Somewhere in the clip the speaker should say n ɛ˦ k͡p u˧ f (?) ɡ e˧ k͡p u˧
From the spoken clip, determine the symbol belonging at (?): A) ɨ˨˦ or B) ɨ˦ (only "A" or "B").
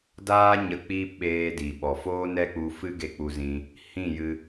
B